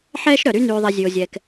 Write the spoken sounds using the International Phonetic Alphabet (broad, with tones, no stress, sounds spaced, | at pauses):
ħ ɛː˦ ʃ ɾ œ˩ ɾ y˦ n yː˨ ðˤ ɛ˨ zʲ ʉ˩ o̯ zʲ ɛː˩ k